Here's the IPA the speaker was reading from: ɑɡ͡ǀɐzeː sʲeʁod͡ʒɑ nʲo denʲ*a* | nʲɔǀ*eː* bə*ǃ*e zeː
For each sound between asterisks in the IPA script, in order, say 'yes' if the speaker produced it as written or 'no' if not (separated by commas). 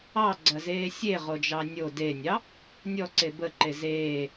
no, no, yes